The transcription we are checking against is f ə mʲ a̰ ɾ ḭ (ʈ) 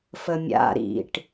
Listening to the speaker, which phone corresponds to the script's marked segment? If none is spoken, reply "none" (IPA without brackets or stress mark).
ʈ